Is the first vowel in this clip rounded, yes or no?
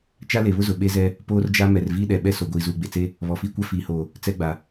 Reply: no